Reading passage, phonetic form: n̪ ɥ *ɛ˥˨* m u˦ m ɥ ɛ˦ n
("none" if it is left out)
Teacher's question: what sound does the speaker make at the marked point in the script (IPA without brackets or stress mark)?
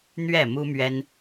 ɛ˥˨